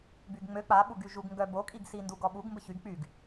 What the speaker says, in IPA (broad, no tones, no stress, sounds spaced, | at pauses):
b y ɡ ŋ͡m ø k͡p a ɓ u ɡ y ʒ u ɡ ŋ ɡ œ b o kʼ i ɡ s i n d u ɡ ɔ ɓ u ɡ m b ə ç y ɡ k͡p y ɡ